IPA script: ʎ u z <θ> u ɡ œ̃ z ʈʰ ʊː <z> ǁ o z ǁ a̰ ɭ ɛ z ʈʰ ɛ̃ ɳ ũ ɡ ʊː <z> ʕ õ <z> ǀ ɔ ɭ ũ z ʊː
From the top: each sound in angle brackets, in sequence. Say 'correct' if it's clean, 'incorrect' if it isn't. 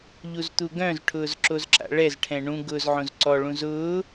incorrect, correct, correct, correct

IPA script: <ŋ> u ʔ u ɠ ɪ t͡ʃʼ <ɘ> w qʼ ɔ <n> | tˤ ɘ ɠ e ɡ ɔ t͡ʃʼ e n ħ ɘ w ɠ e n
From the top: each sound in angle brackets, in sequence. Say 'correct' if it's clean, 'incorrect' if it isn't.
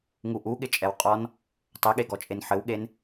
correct, incorrect, correct

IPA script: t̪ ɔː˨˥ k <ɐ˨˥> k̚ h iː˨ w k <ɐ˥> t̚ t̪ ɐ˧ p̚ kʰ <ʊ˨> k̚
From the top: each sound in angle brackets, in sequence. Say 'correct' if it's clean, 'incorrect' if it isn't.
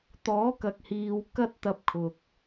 incorrect, correct, correct

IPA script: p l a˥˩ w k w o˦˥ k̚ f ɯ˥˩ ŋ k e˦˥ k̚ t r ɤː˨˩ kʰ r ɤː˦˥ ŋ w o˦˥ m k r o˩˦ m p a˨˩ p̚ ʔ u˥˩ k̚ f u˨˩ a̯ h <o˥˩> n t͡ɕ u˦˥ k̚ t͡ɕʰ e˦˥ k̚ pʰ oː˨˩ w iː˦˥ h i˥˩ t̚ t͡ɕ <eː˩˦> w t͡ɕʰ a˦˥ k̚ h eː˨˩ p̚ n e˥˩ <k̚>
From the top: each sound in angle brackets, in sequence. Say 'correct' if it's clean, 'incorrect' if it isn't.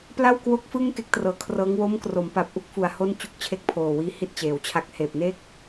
correct, correct, correct

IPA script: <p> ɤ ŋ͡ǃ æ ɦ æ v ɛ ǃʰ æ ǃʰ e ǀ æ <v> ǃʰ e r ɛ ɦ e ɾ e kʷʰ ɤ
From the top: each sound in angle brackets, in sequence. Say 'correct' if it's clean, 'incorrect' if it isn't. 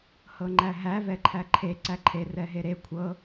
incorrect, incorrect

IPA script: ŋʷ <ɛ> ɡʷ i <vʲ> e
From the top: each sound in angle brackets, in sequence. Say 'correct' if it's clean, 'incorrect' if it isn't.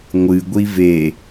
incorrect, incorrect

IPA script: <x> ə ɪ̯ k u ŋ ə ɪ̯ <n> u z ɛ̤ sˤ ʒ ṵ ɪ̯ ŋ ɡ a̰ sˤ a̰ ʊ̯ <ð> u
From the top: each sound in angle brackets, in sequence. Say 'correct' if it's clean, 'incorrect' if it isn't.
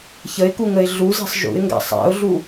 incorrect, incorrect, incorrect

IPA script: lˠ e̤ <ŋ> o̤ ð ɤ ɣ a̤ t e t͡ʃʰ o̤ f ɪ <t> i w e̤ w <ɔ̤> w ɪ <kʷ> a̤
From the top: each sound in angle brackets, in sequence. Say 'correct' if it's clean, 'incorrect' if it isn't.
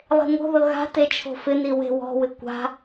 correct, incorrect, correct, correct

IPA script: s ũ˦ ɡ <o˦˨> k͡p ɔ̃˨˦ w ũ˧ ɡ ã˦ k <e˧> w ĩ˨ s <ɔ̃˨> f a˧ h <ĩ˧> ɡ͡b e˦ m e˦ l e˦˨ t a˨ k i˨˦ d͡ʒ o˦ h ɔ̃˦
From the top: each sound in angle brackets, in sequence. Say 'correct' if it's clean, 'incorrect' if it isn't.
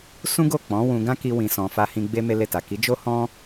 correct, incorrect, correct, correct

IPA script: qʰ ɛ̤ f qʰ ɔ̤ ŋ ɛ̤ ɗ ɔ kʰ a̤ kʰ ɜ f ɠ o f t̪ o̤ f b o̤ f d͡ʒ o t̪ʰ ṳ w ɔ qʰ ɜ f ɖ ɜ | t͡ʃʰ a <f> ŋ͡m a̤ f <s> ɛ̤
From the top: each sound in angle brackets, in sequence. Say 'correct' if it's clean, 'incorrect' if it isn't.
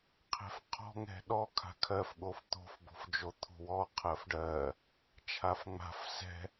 correct, correct

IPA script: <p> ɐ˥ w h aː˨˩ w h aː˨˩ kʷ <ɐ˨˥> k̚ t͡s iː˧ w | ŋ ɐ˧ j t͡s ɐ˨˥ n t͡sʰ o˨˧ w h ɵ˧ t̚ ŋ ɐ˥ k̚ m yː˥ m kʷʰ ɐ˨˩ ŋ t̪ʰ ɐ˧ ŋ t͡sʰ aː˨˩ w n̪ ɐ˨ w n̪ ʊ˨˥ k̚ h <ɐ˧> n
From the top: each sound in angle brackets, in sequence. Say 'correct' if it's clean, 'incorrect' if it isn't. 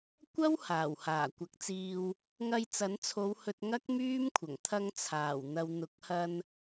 incorrect, correct, correct

